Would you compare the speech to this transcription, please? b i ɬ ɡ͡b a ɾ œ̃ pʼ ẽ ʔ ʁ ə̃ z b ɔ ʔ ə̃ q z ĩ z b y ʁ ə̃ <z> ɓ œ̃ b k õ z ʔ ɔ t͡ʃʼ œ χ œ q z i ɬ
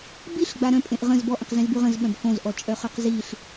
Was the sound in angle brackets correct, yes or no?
yes